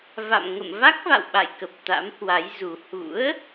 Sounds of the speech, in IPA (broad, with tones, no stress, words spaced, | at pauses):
va̰˧˨mŋə̰˧˨m va˦˥k̚va̰˧˨wɓa̰˧˨jkə˨˩p̚ t̪a̰˧˥mhwa˨˦jzu˨˩ hṵ˧˥ə̯